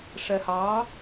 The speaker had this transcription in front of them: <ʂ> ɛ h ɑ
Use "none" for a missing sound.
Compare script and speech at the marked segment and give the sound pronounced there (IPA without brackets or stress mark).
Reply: ʂ